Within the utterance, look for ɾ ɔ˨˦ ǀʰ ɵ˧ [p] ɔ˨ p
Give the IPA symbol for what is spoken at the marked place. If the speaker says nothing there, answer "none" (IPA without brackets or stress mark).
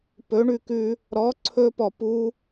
p